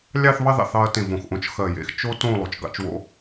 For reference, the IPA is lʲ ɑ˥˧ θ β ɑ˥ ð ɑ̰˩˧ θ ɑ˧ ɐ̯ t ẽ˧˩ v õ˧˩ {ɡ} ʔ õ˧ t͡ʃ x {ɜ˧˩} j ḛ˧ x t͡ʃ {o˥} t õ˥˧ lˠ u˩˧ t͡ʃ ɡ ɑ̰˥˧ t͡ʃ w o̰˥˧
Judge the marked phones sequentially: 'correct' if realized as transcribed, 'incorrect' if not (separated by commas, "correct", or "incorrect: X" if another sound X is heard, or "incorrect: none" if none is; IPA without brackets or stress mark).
incorrect: x, correct, correct